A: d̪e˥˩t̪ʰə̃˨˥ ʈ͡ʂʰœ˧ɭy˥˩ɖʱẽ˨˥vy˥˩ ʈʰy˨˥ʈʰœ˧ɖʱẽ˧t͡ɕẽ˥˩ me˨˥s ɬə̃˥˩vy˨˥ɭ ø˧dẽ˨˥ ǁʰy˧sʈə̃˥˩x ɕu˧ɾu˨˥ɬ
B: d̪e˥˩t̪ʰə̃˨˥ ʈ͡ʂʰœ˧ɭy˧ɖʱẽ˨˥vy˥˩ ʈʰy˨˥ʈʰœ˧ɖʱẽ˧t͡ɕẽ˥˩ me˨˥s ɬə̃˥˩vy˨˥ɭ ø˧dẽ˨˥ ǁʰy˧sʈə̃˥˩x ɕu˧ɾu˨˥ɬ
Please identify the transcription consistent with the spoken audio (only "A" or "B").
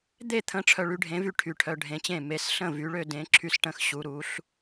B